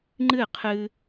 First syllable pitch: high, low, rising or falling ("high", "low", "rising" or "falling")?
falling